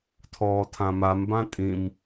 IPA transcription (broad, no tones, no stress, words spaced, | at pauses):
tʰɔːtʰãmambã tʼĩm